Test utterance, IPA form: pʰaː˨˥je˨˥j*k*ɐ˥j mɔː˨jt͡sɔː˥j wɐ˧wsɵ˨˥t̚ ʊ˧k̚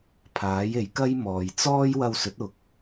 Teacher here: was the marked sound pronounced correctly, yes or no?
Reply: yes